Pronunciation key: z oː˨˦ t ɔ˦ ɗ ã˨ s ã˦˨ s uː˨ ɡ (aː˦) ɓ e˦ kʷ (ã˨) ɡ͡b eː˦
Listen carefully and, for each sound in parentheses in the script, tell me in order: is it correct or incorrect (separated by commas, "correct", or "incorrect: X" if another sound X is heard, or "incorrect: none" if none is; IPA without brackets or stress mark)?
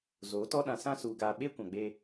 incorrect: aː˨, correct